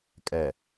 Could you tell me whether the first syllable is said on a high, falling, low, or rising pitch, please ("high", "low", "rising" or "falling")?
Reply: low